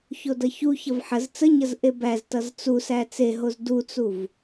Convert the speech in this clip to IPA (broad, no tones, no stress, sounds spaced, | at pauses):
ç o d ʌ ç u ç ʌ v ħ ə z t͡s ə ɲ ʌ z ʔ e b æ z t ʌ z t͡s u s æ t͡s e ɦ o z d u t͡s u v